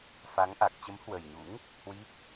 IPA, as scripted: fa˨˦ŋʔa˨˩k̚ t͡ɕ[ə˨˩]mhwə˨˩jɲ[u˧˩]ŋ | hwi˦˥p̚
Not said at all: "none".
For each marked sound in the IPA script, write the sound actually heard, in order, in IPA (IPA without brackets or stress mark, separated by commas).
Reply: ə˨˦, ṵ˧˥